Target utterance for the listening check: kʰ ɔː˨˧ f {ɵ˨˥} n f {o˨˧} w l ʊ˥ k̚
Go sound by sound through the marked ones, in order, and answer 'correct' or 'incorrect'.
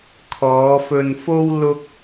incorrect: ɵ˧, incorrect: o˥

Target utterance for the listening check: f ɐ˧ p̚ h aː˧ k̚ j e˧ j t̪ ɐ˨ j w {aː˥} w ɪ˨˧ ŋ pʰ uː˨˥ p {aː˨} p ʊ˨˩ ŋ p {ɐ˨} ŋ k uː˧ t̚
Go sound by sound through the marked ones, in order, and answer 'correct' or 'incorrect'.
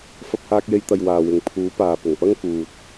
incorrect: aː˨, correct, incorrect: ɐ˥

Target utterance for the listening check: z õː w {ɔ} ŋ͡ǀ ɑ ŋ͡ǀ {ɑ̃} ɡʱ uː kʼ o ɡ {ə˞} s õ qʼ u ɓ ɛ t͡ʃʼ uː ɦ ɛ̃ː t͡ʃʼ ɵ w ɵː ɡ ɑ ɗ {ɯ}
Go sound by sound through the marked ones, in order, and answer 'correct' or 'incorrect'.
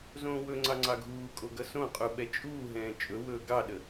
incorrect: ɵ, incorrect: ɑ, incorrect: ʌ, incorrect: ə

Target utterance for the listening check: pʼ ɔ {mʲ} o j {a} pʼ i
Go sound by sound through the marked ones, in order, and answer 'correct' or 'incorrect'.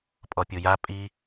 incorrect: pʲ, correct

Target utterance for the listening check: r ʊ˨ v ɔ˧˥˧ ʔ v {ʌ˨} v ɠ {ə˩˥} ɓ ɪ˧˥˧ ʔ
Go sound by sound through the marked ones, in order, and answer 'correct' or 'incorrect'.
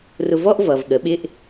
correct, correct

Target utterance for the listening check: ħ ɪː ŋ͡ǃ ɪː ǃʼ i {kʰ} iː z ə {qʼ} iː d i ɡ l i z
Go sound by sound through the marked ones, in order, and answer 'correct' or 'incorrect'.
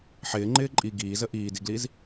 incorrect: ɡ, incorrect: ʔ

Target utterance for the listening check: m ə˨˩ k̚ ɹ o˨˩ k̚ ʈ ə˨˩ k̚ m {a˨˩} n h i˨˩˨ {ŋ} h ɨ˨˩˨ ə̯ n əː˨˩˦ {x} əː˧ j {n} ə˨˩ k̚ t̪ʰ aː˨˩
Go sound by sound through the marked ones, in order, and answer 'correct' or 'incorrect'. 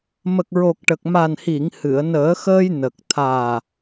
correct, correct, correct, correct

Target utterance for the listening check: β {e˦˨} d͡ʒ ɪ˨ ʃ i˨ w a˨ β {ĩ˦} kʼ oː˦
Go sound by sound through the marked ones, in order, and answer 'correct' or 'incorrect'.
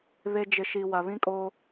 incorrect: e˦, correct

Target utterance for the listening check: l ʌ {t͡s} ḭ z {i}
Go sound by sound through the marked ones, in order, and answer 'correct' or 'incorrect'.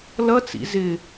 correct, incorrect: ɪ

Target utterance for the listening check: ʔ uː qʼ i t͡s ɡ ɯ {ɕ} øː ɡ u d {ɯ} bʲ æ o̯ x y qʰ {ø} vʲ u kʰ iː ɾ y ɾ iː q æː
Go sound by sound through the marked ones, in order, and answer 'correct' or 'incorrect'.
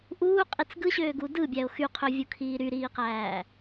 correct, correct, correct

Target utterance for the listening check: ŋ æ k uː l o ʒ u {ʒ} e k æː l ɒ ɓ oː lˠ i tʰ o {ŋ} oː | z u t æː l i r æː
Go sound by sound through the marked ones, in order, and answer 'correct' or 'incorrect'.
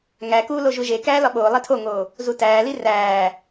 correct, correct

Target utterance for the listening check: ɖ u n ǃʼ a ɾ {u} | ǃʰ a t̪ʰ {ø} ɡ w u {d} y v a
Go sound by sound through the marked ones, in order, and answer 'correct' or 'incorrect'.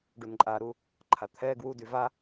correct, incorrect: ɛ, correct

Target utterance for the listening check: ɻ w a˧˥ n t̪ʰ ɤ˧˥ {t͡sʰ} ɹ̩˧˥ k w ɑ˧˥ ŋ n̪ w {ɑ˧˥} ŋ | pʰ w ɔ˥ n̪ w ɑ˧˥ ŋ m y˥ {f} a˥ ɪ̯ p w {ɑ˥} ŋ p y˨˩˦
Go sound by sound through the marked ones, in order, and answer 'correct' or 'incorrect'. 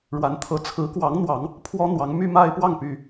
correct, correct, incorrect: m, incorrect: ɑ˥˩

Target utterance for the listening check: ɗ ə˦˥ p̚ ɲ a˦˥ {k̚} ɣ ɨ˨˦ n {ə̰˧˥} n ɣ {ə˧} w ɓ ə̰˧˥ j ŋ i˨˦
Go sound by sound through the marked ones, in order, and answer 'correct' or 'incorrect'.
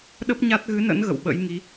incorrect: t̚, correct, incorrect: ə̰˧˨

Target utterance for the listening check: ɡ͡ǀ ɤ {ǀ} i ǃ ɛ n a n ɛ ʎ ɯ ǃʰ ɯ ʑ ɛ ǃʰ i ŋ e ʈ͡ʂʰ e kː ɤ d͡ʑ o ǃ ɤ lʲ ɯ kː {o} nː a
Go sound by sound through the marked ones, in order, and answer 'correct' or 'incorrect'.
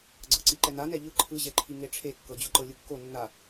correct, correct

